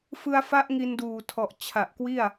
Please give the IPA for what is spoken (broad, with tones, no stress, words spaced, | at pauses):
fɯ˧a̯fa˦˥ʔ ŋi˧nduː˨˩tʰɔ˨˩ʔ t͡ɕʰa˨˩ʔkwi˥˩a̯